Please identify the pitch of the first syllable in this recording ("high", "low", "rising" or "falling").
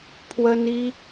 high